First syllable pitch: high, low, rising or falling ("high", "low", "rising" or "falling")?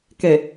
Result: low